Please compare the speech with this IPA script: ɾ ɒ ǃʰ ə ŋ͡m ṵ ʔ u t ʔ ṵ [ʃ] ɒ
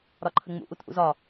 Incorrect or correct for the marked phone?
incorrect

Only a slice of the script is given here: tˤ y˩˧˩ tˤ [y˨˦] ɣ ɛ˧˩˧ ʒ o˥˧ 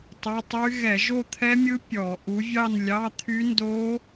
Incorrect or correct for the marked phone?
incorrect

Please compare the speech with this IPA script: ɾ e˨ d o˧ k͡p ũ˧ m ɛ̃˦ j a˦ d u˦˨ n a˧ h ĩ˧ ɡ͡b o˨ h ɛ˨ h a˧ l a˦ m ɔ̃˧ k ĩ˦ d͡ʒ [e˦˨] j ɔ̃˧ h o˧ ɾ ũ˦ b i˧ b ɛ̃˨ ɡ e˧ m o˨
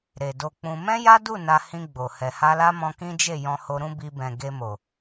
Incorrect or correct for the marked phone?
correct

